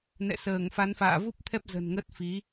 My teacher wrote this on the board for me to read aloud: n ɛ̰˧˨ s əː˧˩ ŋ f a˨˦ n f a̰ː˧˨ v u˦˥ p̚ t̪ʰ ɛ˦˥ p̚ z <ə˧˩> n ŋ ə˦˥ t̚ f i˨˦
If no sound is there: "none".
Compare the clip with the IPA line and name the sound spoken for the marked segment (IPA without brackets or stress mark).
ə̤˨˩